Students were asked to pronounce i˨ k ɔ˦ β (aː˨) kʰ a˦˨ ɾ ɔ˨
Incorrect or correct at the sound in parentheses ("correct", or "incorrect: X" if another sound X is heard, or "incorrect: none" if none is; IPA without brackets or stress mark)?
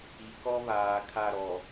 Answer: correct